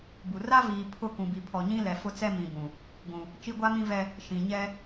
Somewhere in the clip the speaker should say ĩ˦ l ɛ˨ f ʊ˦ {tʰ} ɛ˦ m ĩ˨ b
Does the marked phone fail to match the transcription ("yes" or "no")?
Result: yes